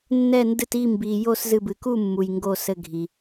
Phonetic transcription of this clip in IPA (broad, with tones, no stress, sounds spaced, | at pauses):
nː ɛ˦˨ n d ɨ˦˨ t i˦˨ m b i˨ j o˦˨ s z ɨ˦˨ b ɨ˨ k u˦˨ mː u˨ j ŋ ɡ o˦˨ s ɘ˦˨ ɡʱ i˨